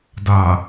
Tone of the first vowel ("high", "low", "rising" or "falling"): low